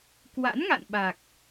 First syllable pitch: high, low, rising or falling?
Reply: rising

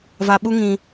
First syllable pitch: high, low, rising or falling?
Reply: low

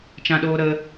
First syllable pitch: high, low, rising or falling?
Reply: high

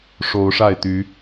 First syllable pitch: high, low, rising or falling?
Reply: rising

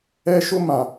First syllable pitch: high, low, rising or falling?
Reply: high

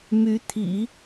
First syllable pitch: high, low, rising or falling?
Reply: rising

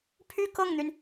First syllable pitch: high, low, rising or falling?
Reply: falling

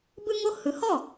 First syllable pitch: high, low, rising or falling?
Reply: high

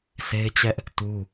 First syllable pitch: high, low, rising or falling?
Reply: high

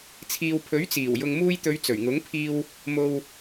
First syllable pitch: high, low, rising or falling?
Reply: low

